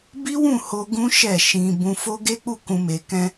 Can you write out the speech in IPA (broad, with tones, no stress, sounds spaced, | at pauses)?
b i˦ w ũ˦˨ h o˧ ɡ ũ˦ ʃ ɛ˦˨ ʃ ĩ˧ b ũ˧ f o˦ ɡ e˦ k͡p u˦˨ k ũ˧ m e˧ k ɛ̃˦